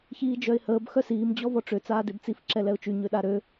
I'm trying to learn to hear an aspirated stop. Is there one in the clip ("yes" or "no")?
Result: no